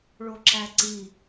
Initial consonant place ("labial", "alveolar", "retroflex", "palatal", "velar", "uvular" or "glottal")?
retroflex